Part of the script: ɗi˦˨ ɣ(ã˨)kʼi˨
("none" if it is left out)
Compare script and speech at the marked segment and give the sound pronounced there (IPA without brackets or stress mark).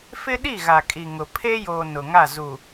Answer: a˨